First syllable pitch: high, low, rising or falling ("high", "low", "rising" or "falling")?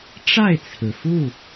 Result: falling